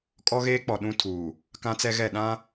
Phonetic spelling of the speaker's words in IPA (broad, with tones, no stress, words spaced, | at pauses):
kʼɔ˦ɣeː˦k͡pɔ˨ ɗũ˦tʰuː˨ | kã˦t͡sɛ˦ɣɛ˦˨ ɗã˦